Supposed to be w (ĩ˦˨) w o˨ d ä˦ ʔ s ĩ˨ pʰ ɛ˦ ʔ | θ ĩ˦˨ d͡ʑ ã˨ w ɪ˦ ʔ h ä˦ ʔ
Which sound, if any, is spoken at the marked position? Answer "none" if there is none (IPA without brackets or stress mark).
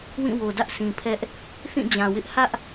ĩ˦˨